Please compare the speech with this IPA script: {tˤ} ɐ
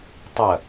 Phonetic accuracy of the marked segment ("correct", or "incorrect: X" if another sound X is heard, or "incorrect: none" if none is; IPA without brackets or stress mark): correct